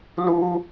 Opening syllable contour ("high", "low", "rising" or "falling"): high